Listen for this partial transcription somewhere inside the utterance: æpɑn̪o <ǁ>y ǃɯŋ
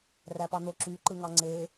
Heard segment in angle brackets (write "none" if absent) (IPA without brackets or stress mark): ǁ